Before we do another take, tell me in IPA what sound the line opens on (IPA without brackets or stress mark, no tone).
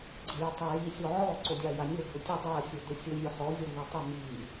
ɡ͡ǀ